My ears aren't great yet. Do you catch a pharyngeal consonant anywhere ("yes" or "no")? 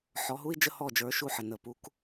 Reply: yes